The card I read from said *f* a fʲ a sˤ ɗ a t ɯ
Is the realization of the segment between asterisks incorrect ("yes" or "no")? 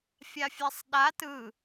yes